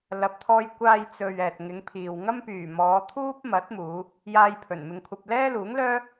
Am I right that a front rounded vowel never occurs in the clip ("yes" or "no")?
no